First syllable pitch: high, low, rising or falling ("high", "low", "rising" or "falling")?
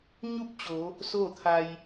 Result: falling